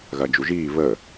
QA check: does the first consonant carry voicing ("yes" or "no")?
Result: yes